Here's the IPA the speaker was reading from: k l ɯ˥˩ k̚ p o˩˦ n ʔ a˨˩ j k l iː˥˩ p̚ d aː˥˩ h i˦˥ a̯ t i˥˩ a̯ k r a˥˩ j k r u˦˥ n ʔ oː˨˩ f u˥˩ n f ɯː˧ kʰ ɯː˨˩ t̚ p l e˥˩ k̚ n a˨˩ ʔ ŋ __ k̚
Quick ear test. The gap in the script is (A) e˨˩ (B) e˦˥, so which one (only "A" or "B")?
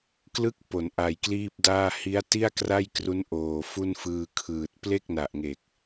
A